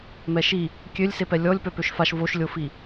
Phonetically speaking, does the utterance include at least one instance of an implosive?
no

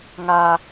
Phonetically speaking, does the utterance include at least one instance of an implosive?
no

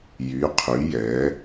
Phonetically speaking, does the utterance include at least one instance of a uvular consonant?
yes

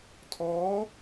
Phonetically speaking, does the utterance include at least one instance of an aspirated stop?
yes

